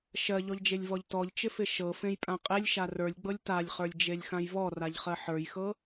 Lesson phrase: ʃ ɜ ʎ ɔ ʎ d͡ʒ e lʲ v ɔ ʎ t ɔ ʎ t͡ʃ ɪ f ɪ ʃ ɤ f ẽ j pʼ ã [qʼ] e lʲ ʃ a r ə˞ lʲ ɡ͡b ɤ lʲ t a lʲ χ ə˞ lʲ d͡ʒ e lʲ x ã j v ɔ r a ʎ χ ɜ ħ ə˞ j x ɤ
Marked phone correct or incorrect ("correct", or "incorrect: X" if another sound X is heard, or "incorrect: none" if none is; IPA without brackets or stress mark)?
correct